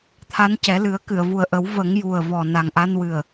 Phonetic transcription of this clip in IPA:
t̪ʰa˧˥ncɛ˨˩˦ lɨ˨˩˦ə̯ kɨ˨˩˨ə̯vu˨˩ə̯ʔə˨˩˦w və˨˩˦ŋju˨˩ə̯ vɔ˨˩ na˨˩ŋʔa˧nwɨ˨˩ə̯

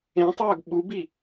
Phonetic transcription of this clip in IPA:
ẽtˤœːɡ ɓubi

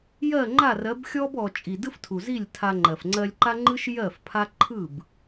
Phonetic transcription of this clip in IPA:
jɜ˦˨ŋ͡ǃa˦˨rɜ˨˦b xʲɔ˦b ɔ˧ t͡ʃʼi˨dɯ˦f tʰu˨zi˦˨lʲtʰa˧ŋ͡ǃɜ˨f ŋ͡ǀɜ˧lʲǃa˦ŋ͡ǃɯ˦ʃ jɜ˦˨fpʰa˦ ǃʰɯ˦˨b

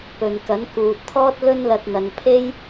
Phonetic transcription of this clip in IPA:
pɵ˨n kɐ˨˥nkuː˨t̚t̪ʰɔː˥t̚ lɵ˥nlɐ˧t̚n̪ɐ˨n pʰe˥j

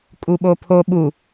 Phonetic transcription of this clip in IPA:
kʼuɓopʰo ɓu

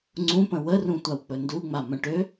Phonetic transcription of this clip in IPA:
ŋ͡ǀũpə̃ wərũ tʷawk͡pɵnduŋ͡ma mə̃ʈø

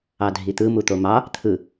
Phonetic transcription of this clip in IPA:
ɑdʱit̪ɯ mut̪omɑ | t̪ʰɯ

